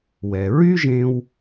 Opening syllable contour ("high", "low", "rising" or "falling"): low